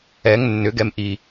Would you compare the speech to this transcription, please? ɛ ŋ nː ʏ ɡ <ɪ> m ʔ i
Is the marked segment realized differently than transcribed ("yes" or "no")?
yes